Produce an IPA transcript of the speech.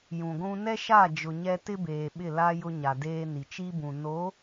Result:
j ũ˨ ɡʷ ũ˦ n ɛ˦ ʃ a˦˨ d͡ʒ ʊ˨ ɲ ɛ˦ t ɪ˦ b eː˨ ɓ ɪ˦˨ l a˦ j ʊ˦ ɲ a˨ d eː˦ n i˨ t͡ʃ i˦ b ũ˨ n o˨˦

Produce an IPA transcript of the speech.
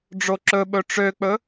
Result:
ɖ͡ʐ o ǁ ɵ ɓ ɵ ʈ͡ʂ ø k͡p ɵ

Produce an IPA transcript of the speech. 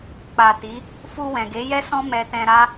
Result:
k͡p a˨ t i˨˦ | f u˧ w ɛ̃˨ ɡ e˨˦ j ɛ˦ s ɔ̃˦ m ɛ˧ t ɛ̃˧ ɾ a˦

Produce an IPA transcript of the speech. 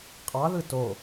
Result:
qʼ ɑ ð ɯ t o

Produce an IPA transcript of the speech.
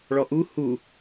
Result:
ɭ ɔ ʔ u h u

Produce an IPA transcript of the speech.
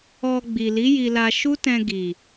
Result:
ɔ˧ ɡ͡b i˨ l i˨˦ j i˧ l a˧ ʃ u˦ t ɛ̃˧ ɡ i˨

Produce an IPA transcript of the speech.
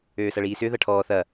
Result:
øː s ɐ ɭ iː s ʏ ð ɐ ʈʰ ɔː θ ɐ

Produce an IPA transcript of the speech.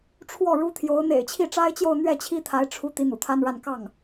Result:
ʈ͡ʂʰ w ɔ˥˩ ɻ u˥ t̪ʰ j o˧˥ ʊ̯ n̪ ḛ˨˩ ɪ̯ t͡ɕʰ i˥˩ ʈ͡ʂ a˥ ɪ̯ t͡ɕ j o˥˧ ʊ̯ n̪ ɥ ɛ˥˩ t͡ɕʰ i˥ t̪ʰ a˧˥ ɪ̯ ʈ͡ʂʰ u˧˥ t̪ i˧˥ n̪ ṵ˨˩ t̪ʰ a˥ n ɻ a˥˧ n k ɑ˥˩ ŋ

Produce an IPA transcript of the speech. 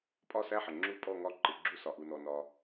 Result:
pʼ ɒ˦˨ s æ˦˨ ħ ə˩ ŋ͡ǁ u˦˨ pʼ ɔ˦˨ ŋ ɒ˦˨ ǃ ɪ˩ ɡ͡ǁ u˦˨ s ɒ˩ ʔ u˩ n ɔ˩ n ɒ˩

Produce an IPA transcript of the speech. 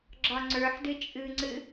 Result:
ɡ͡ǁ ɒ ŋ͡ǀ ə˞ ħ d ɨ t͡ʃʼ ɨ ŋ͡ǀ ɨ

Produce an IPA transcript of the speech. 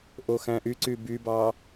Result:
ʔ o x æ̃ ʔ y ǀ y b y b ɑ

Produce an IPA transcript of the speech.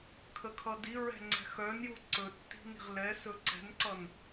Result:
kʰ ə kʰ ʌ d i ɹ ɛ̤ ŋ͡ǀ ɛ̤ x œ n j u ǀ ɵ tː i̤ n i̤ ʁ l ɛ s ɵ ǀ ɛ̤ n ǀ ʌ n

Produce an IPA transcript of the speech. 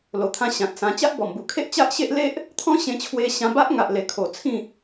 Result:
l o˨˩ t̪ʰ ã˧ ɕ ã˨ t̚ s ã˧ t͡ɕ a˦ ʔ b ɔ˨˩ m b u˨˩ kʰ e˦ ʔ t͡ɕ a˦ ʔ ɕ e˦ ʔ l e˦ ʔ | t̪ʰ ɔ̃˦ ɕ ẽ˧ t͡ɕʰ w e˧ ɕ ã˧ b a˦ ʔ ŋ a˨ ʔ l e˨˩ kʰ o˨˩ t͡sʰ ĩ˥˧

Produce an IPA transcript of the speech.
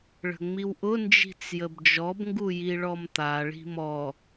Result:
ɭ ə̤ ŋ͡m i w ʔ ʊ n d͡ʒ i̤ t͡s j ə b d͡ʒ ɔ b ŋ ɡ u j i ɭ ɔ m t̪ a ɭ i̤ m ɔ

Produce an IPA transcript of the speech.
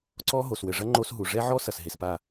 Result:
ǀ ɔ˦ ɦ o˨ s w ɘ˨ ʐ ɐ˦ ŋ͡ǃ o˦ s ɦ u˨ ʐ ɛ˦ ʕ ɔ˦ s ɐ˨ s ɦ e˨ s p a˦˨

